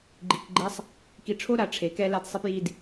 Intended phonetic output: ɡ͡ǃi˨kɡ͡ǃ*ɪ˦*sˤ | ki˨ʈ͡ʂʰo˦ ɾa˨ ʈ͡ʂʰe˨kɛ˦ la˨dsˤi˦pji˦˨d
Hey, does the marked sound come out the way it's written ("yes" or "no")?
no